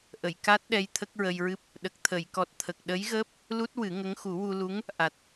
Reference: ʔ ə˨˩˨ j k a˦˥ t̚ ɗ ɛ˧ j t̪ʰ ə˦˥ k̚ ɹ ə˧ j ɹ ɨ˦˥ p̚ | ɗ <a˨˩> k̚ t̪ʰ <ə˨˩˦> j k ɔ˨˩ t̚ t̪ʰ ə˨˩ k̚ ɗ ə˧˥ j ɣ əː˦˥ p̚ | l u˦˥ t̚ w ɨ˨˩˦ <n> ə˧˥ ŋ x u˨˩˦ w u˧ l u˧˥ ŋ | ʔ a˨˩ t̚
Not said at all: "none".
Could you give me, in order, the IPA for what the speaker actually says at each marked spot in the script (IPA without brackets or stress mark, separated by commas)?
ə˨˩, ə˨˩˨, ŋ